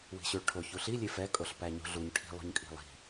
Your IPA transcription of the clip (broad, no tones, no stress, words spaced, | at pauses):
wi̤ɕʉɭʈʰo çuɬi lʲefɛ kʼoɬpæɲṳɮuɲ ʈʰi̤ lˠṳɲkʼi̤lˠi̤